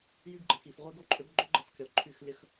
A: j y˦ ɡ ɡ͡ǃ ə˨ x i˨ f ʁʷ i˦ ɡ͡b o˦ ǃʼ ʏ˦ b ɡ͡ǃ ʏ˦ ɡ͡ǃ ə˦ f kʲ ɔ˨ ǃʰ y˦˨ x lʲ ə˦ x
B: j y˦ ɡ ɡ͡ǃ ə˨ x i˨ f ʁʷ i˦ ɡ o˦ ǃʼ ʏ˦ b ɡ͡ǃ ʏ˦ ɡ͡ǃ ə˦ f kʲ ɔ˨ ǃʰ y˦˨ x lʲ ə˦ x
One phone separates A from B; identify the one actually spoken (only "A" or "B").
B